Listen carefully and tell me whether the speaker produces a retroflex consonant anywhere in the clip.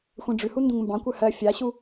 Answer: yes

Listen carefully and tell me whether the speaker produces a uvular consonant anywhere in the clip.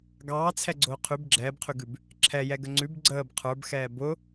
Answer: yes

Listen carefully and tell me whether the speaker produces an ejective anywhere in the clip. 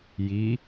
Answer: no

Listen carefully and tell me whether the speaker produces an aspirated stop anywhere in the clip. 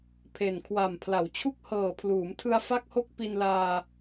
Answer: yes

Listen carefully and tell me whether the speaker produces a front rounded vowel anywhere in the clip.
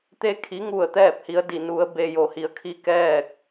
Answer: no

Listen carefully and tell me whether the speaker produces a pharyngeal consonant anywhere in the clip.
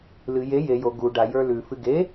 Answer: no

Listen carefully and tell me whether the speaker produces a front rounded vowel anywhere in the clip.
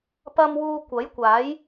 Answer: no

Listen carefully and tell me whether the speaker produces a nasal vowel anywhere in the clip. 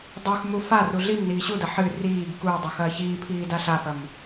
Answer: no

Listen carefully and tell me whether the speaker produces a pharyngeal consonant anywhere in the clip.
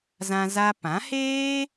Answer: no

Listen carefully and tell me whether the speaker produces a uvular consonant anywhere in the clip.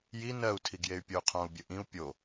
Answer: yes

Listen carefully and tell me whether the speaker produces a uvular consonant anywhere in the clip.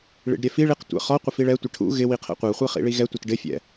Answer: yes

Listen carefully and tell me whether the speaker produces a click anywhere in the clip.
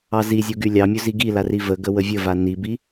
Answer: no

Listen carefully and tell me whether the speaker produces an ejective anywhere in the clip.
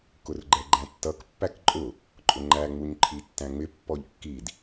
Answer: yes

